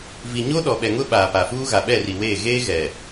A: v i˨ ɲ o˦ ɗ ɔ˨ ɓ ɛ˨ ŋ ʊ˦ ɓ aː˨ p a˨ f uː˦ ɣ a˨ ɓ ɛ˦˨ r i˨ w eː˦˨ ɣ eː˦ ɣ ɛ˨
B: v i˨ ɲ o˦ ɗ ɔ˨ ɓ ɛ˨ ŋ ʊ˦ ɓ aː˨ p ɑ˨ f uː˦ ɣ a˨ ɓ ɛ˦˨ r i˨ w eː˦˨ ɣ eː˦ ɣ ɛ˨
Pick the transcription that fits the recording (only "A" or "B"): A